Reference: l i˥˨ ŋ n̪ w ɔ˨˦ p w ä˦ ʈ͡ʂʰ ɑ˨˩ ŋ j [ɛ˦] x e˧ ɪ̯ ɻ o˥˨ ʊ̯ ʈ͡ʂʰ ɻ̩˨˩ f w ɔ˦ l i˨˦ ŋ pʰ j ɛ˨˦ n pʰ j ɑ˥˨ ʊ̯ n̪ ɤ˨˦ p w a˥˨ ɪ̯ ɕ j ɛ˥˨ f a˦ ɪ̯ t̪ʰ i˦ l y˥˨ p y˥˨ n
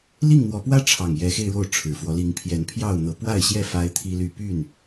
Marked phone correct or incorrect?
incorrect